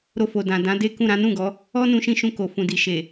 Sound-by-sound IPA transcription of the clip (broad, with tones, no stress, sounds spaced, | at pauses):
ɾ o˧ f o˨ d ã˨ d ã˨˦ d e˦ k ũ˦˨ ɾ ã˨˦ n ũ˦˨ ɡ ɔ˨˦ | ɔ˦ n ũ˧ ʃ ĩ˧ ʃ ũ˧ k o˨ f ũ˨ d i˨ ʃ e˨